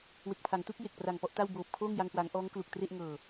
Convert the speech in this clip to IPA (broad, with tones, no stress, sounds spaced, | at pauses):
w e˨˩ k̚ pʰ a˩˦ ŋ t u˦˥ k̚ j e˨˩ k̚ p r a˨˩ ŋ p ɔ˥˩ ʔ t a˥˩ w b oː˨˩ p̚ kʰ oː˥˩ ŋ j a˧ ŋ k w aː˩˦ ŋ ʔ ɔː˦˥ ŋ k l u˨˩ k̚ t r e˥˩ ʔ ŋ ɤː˨˩